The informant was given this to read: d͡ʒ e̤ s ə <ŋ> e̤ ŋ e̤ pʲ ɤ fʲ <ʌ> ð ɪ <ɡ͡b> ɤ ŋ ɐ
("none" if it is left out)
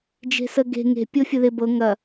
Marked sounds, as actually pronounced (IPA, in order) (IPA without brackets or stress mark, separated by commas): ɡ, ə, b